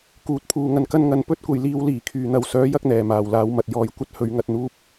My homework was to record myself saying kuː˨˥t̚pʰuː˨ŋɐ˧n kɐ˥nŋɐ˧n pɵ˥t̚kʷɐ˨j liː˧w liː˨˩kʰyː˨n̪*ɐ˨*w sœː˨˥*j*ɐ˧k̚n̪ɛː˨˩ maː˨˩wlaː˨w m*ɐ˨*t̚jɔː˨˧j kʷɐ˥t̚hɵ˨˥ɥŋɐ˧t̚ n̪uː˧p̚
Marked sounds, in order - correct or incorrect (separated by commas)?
correct, correct, correct